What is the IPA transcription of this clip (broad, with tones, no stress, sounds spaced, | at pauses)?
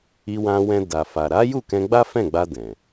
i˧ w ã˧ w ɛ̃˧ d a˨ f a˨ ɾ a˨˦ j u˦˨ k ɛ̃˧ ɡ͡b a˦ f ɛ̃˦˨ ɡ͡b a˧ d ɛ̃˨